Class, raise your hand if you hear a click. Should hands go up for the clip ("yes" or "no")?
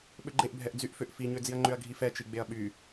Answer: yes